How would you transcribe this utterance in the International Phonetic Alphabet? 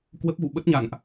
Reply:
k w ə˦˥ p̚ ɣ ṵ˧˨ ɓ ə˦˥ t̚ ɲ a̰˧˨ n ʔ

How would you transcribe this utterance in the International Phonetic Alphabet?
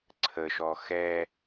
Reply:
ǀʰ ə ʃ ɔ x ɛ

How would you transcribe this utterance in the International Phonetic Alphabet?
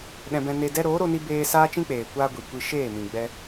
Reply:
ɗ ɛ̃˧ b ɛ̃˧ n e˧ d ɛ˦ ɾ oː˨˦ ɾ o˧ n i˧ b eː˧ s aː˦ t͡ʃ ĩ˦ k͡p eː˨ kʷ aː˧ ɡʷ i˨ kʷ i˧ ʃ eː˦˨ m ĩ˨ ɡ͡b ɛ˧

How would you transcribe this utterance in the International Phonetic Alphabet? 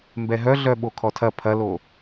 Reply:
m b ɛ ɦ œ ɮ œ ɓ o kʰ ɔ tʰ ɐ pʰ ɐ l o

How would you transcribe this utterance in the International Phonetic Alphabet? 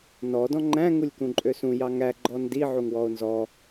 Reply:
n ɔ d ɔ̃ ŋ͡ǃ æ̃ ŋ u lʲ k ũ ǃʼ ø s ũ j ɑ ŋ æ ɡ͡ǃ ɔ n d i ʕ u ŋ w ɔ o̯ n z ɔ

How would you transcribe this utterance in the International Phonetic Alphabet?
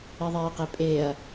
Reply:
i ðˤ eː q e pʼ eː ɐ̯

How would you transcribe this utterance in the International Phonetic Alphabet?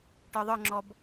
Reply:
ʈ ə˞ ðˤ ə˞ ŋ͡ǁ ɔ b

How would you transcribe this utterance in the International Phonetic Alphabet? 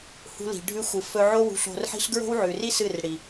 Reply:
h ṳ˧ l i̤˨ ɖʱ ʉ˧ xʷ ɨ˨ f ɵ˧ ʕ o˦ w ṳ˧ ɬ o̤˧ r ħ i̤˦ ɬ ɡ ɹ o̤˦ w ʕ ʉ˨ r i˦ s ɨ˦˨ r ɽ i˨

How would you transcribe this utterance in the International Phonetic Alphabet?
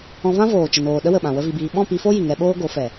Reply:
ɔ̃˧ v ã˦ v oː˨ t͡ʃ ə˨ n oː˨ ɗ ə˦ w ə˨ ɓ ã˨ w ə˦ v i˧ b iː˧ ɓ ɔ̃˦˨ p i˧ f o˦ j i˨ ŋ ɛ˧ ɓ oː˦ ɡ o˨˦ f ɛ˨

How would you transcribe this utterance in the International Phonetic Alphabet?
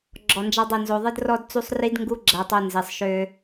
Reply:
ɡ͡ǁ ɔ˨ n d͡ʒ a˧ dˤ o˨ n z o˨ ðˤ ɨ˧ d r ɔ˧ d t͡s u˦ sˤ r i˦ d ŋ ɡ u˦ ɡ͡ǁ æ˧ tˤ o˧ n z i˨ sˤ ʃ ø˧

